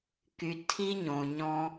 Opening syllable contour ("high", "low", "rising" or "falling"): low